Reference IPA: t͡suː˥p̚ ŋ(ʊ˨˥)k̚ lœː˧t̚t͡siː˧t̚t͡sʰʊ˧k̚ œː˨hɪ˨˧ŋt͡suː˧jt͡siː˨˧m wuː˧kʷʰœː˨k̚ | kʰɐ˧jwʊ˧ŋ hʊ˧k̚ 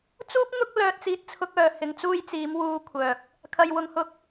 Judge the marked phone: incorrect: ʊ˥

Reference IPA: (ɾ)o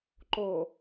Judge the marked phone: incorrect: ǃ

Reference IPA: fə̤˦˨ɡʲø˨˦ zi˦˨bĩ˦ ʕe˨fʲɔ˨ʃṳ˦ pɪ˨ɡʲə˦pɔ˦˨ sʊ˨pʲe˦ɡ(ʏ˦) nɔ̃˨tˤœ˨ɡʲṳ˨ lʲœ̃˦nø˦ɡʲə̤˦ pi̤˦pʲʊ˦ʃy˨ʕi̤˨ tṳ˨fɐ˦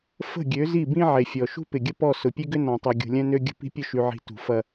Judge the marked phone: correct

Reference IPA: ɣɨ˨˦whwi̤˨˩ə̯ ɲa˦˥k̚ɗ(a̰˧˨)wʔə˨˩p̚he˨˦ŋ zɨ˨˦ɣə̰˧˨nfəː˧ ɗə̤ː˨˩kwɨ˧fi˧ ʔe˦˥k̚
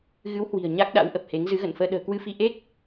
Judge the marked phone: incorrect: a̰˧˥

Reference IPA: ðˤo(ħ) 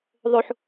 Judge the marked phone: correct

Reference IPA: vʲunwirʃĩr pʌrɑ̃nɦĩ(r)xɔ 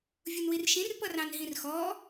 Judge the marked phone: correct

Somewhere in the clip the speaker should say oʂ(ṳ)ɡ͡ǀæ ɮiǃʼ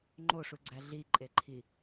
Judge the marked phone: incorrect: u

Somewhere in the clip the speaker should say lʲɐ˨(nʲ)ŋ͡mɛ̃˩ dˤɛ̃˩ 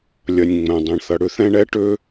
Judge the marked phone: correct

